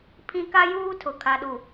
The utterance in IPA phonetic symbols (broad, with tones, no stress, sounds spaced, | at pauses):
pʰ ĩ˦ k a˦ j uː˦ tʰ ʊ˨ kʰ a˨ ɗ u˨